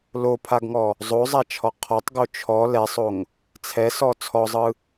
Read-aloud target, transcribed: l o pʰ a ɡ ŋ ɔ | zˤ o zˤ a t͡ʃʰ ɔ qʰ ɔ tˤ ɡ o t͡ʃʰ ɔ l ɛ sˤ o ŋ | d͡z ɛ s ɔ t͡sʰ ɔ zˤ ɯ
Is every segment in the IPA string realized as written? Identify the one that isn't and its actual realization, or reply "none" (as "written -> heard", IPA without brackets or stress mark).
d͡z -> t͡sʰ